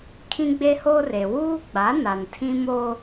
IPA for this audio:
kʰĩ˦ɡ͡be˦hoː˦r e˨ wuː˦ɡ͡ba˨˦ na˨n tʰĩ˦moː˦

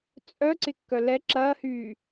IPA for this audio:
t͡sʼœǀɪkːœ lɛ ǁɐːhyː

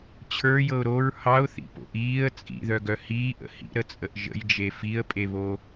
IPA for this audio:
t͡ɕʰə˞jɤʊ̯ ɾoɹ hɑʊ̯θḭpo̰ʔ iːə̯ t͡sʼḭðœɡœ hiːʔə̰ hḭɾət͡sʼəʔ ʒə̰jd͡ʒe fiə̯pʼeβo

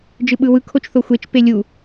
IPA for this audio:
d͡ʒɯɓɯwɯ kʰot͡ʃθoxʷet͡ʃ pelʲu

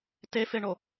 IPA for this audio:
tefeɳo

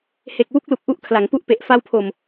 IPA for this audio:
he˨˩k̚wu˦˥k̚lu˨˩k̚ ʔu˦˥ʔkʰla˩˦ŋpu˦˥ʔpe˨˩ʔ fa˧wpʰo˨˩m

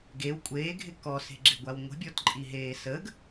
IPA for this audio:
ɡew kʷʼeːɡʱɪ kɔse̤ɡ͡ǁɪɡʷaw ŋʷə̤bʲɔtǃʼiɦeː səɡ

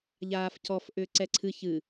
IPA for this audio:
ʎaːfcɔf ʔʏːǀɛǀʰɨ çɨ

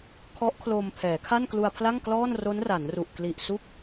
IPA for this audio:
kʰɔ˦˥ʔkʰlo˧m pʰɛː˩˦kʰa˥˩n klu˧a̯pʰla˥˩ŋ klɔː˥˩n ro˦˥nra˩˦nru˨˩ʔ kli˨˩ʔ su˥˩k̚

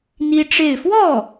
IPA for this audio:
n̪i˥ʈ͡ʂe˥˧ɪ̯ fwɔ˥˩

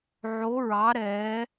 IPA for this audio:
ʕo˨˦ɹɑ˨˦ ɾɛ˨˦

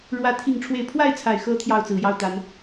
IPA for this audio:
ɻwä˦t̪ʰi˥˨ŋʈ͡ʂʰwe˥˨ɪ̯ pʰwa˥˨ɪ̯t͡sʰa˨˩ɪ̯xɤ˨˦ t̪ʰjɑ˥˨ʊ̯t͡sɹ̩˨˩jɑ˥˨ʊ̯t̪a˨˦n

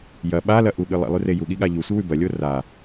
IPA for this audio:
jɐ ɓalɐʔuɠɨ lˠḭlˠʉre juɠiɠa ʎusʷɨwʉ bɐlʲo ra

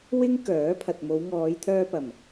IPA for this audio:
wɪ˥ŋkœː˨˥ pʰɐ˨t̚mo˨˧w ŋɔː˨˧jt̪ʰœː˧pɐ˨˩m

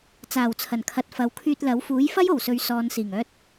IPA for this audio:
t͡saː˨˩wt͡sʰɐ˨˩nkʰɐ˨t̚ fɐ˨˧wkʰyː˧t̚lɐ˨˥w fuː˨˥jfɐ˥jo˨˩wsɵ˨˧ɥ sɔː˨˧n siː˨˩ŋœː˧t̚

